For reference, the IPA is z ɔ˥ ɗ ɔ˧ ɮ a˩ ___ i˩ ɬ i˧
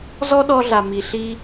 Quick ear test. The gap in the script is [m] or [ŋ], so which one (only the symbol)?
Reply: m